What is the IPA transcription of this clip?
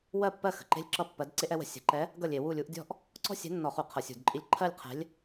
w ɜ˥˩ pː ɜ˥˩ x ə̤˨˩ ǃ e̤˥˧ lʲ ǁ ʌ˥˧ pː ɜ˧˥ d ǀ e˥ ʔ ɛ˧˥ w ə̤˥˩ sʲ ə̤˧˩˧ ǃ ɛ˧˥ | ɡ ʌ˥˩ lʲ e˧˩˧ w u˥˩ lʲ u˧˥ ʔ dʲ ɔ̤˥ ʔ | ǀ ɔ̤˥˧ sʲ ɛ̤˧˥ nː ɔ˧˩˧ χ u˧˩˧ qʰ ʌ˧˩˧ sʲ ṳ˧˩˧ d ǃʼ i˥˩ lʲ ǃʰ ɜ˥˧ lʲ qʰ ɛ̤˧˥ lʲ

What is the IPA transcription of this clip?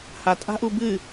h a tʼ a̤ ʔ u b ɨ

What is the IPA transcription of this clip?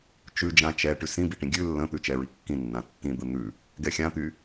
t͡ʃ ʉ d͡ʒ ã t͡ʃ ɛ ʈ ʉ s ĩ b i ʈ ĩ ɡʲ ʉ lː ə̃ t̪ ʉ t͡ʃ ɛ ɹ i kː ĩ nː ã tː ĩ d̪ ə n̪ ʉ | ɡ ɛ xʲ ã t̪ y

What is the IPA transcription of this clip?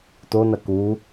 t o n ɐ k u

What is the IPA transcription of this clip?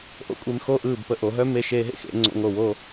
ʔ o̰˥˧ kʷʼ e˧ m x o˥˧ ʔ ɯː˧˩ b p ə˧ ʔ o˩˧ ɦ œ˥ m e˧ ʃ eː˧ ɦ ḛ˥ x ḛ˩˧ ŋ͡ǀ o̰˧ ŋ o˧˩ w o˥˧

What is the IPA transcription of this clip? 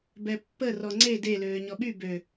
b ɛ pː ə r ɔ ŋ͡ǀ e d e l øː ɲ ɔ ɓ y b ø

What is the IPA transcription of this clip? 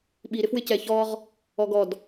ɓ i ɾ ɪ f w ɪ c ɛ ç ɔ ʁ | ɔ ɡ ɔ d

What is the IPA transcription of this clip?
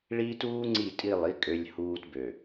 ɭ iː˦ t uː˦ ŋ͡ǀ i˦˨ tʼ i˦˨ lˠ i˦ kʼ ø˦ lʲ h uː˦ t b ø˨

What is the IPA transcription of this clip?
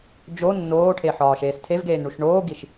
d͡ʒ o nː oː ʈʰ e ħ ɒː ʃ eː s tʰ e v ɡ eː n ɳ u ʃ ɳ oː ɡ i ʃ

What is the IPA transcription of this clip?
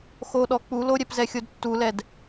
x o ɗ ɔ k͡p u l o ɾʲ ɛ p z ɛ xʲ o d tː u l ɛ d

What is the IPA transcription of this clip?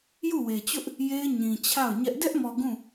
j u˦˨ w e˨ t͡ɕ ʊ˦ ʔ | j e˦ ɪ̯ ɲ ĩ˨ t͡ɕʰ a˦˨ ʊ̯ ɲ ɛ˦ ʔ d ɛ˦ ʔ m ɔ˨ ɡ ũ˦˨

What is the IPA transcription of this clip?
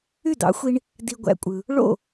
y˥˩ d̪ ɑ̰˩˥ xʷ i˧ ɳ | d̪ i˧ ɡʷ æ̰˧ kʷʼ ɯ˩ | ɭ o̰˥˩

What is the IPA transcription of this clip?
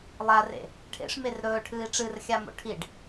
lˠ a r ḛ | ʈʰ ḛ ʂ m e r ɾ ɵː ʈʰ ɨː i̯ ʈ͡ʂ ɨ r xʲ a m o̰ ʈʰ i ɖ

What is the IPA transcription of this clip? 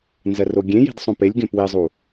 n z ɜ r o ɡʲ ẽ j i̤ d sˤ õ p e lʲ ɡ ẽ p w i zˤ u

